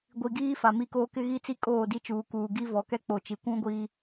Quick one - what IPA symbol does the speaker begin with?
ɡʷ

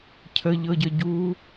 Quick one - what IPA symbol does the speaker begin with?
cʰ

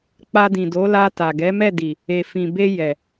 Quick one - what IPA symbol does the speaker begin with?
k͡p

